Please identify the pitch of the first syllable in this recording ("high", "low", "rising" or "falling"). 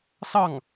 falling